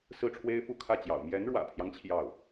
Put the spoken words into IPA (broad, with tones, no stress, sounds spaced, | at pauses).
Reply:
s ɹ̩˥˩ ʈ͡ʂʰ w e˥ ɪ̯ f u˥˧ kʰ ä˥˩ t͡ɕ j ɑ̰˨˩ ʊ̯ m j ɛ˧˥ n ɻ w ä̰˨˩ pʰ j ɑ˦ ŋ t͡ɕʰ j ɑ˥˩ ʊ̯